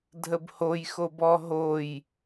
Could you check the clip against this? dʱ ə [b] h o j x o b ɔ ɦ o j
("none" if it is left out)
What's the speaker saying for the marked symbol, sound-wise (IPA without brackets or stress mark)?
b